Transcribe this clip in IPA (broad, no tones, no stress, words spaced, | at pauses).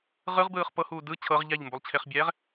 ʁɯʁbɯːχ pɤhuː dɯ t͡ɕʰɤʁ ʎaʎmbulˠt͡ɕʰeχbʲɛːʁ